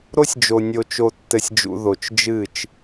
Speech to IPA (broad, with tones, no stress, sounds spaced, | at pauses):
ɾ o˦ sʲ d͡ʒ o˨ nʲ o˨ t͡ʃ o˨ tː ɘ˨ sʲ d͡ʒ ṵ˨ ð o˨ t͡ʃ d͡ʒ ɨ˦˨ t͡ʃ